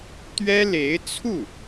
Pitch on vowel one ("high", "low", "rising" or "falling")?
high